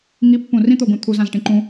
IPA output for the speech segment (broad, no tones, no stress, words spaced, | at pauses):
ŋipːũ rĩt̪oɡũ t̪ʰuzãzʈĩ ǃũ